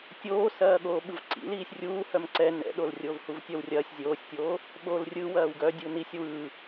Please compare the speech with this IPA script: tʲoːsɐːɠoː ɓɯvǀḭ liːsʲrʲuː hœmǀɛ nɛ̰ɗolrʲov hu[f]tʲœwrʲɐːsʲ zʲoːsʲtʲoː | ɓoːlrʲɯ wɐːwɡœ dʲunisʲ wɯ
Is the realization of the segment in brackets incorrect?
yes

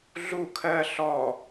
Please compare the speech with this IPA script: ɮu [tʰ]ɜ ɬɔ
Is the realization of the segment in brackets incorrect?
yes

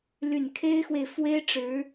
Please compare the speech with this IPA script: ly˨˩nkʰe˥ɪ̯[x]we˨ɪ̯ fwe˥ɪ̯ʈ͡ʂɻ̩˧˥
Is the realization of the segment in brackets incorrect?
no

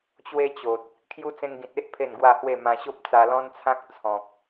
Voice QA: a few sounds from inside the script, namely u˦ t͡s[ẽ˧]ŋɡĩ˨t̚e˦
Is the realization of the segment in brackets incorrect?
no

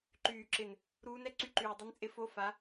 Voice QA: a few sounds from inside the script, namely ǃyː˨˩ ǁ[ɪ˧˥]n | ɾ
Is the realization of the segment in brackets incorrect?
yes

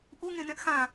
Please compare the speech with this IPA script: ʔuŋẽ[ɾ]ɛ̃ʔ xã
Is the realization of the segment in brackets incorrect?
yes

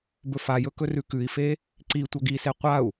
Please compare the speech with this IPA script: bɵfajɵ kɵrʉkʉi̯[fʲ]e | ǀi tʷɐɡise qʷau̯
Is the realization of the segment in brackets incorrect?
yes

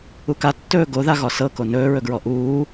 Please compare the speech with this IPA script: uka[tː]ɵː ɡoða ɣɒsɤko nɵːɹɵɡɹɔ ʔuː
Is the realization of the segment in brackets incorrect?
no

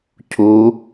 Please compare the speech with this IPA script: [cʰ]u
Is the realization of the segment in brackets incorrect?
no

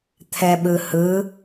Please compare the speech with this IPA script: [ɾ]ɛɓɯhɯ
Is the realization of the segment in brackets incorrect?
yes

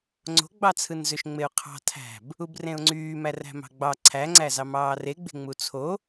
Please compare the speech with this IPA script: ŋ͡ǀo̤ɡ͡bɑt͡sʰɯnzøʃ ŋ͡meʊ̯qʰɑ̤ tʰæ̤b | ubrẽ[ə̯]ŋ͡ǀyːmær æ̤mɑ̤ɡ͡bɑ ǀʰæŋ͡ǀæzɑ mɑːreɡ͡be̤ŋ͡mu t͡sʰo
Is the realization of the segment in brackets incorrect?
yes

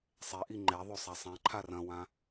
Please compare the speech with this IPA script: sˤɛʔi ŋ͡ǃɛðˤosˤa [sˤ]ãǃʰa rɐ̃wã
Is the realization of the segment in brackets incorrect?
no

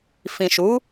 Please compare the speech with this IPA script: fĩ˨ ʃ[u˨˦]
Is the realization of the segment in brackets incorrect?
no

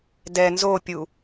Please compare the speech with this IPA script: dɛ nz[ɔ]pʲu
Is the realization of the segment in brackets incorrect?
yes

